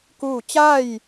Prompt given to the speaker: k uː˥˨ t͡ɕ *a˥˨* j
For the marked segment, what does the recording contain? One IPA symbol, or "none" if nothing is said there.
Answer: a˥˨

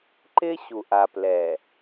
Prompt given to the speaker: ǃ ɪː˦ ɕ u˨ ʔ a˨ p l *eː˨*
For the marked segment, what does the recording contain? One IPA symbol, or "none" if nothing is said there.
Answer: ɛː˨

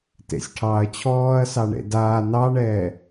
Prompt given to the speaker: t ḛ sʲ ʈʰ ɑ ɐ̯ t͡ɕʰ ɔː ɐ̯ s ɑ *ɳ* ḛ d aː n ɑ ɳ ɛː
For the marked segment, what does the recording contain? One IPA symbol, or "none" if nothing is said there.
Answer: ɳ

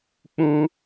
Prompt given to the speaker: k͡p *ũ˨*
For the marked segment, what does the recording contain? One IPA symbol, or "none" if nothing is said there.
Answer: ũ˦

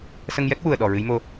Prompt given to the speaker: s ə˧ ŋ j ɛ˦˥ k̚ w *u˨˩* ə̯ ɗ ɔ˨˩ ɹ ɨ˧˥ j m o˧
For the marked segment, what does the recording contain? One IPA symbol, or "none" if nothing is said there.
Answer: u˨˩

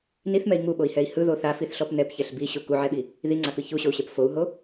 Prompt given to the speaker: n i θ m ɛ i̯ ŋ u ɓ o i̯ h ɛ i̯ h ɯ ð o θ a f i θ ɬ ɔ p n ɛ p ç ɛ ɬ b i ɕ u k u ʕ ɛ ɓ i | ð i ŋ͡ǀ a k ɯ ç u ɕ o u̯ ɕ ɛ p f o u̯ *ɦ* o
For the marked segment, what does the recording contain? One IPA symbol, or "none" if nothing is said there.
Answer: ɦ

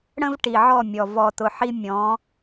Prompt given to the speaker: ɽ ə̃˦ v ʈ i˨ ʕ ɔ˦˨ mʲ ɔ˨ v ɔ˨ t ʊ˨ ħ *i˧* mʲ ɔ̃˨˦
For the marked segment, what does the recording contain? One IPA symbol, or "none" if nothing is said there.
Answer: i˧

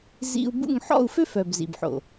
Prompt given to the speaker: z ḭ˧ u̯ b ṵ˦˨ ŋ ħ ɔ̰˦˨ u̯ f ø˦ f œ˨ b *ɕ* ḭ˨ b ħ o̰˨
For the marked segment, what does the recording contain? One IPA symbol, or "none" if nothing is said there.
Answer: z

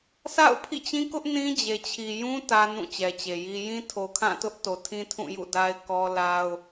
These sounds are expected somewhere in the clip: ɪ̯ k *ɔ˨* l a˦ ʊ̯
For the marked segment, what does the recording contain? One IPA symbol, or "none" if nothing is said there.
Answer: ɔ˦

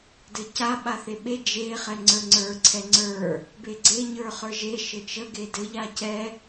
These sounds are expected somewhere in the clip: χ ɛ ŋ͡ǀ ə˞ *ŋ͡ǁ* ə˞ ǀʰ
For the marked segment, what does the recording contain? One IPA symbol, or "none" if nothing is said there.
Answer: ŋ͡ǀ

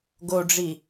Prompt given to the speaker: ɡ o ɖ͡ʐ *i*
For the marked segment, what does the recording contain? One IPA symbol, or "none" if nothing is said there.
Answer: i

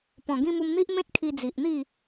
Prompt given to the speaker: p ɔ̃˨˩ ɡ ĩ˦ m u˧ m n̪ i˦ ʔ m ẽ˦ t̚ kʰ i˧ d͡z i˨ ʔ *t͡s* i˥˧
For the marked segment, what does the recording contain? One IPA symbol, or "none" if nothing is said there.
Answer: n̪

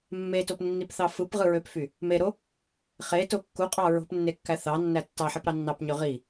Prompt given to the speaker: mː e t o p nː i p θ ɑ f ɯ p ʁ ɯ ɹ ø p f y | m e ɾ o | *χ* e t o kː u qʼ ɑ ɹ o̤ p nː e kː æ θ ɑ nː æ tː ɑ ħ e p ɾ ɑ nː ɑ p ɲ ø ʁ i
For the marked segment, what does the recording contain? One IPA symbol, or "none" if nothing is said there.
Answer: χ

